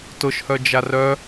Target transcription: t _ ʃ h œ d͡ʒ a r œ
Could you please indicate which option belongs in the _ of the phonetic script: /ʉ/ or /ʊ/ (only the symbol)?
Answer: ʊ